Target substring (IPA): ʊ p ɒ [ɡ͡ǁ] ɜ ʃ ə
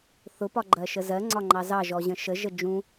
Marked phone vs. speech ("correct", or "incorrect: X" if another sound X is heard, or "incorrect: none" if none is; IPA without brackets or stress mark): incorrect: ɡ͡ǃ